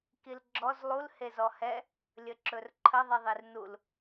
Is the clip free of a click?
no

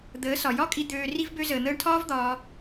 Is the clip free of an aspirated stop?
no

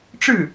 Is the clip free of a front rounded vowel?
yes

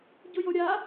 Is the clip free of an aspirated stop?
yes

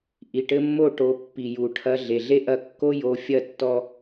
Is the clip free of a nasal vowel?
yes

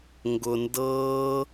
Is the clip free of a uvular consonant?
yes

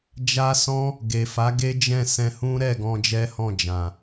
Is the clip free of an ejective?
yes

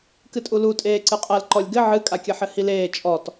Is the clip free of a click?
no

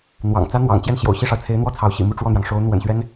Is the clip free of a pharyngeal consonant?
yes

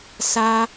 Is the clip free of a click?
yes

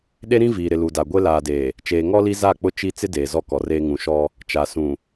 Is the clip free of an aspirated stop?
yes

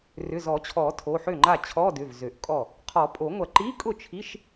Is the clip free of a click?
no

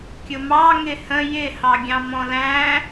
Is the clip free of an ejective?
yes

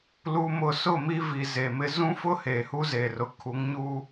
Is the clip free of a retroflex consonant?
yes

